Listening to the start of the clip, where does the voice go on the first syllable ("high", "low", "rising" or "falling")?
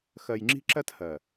low